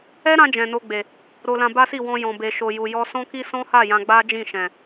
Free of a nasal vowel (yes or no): no